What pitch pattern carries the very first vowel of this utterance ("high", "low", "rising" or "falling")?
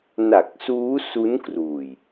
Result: low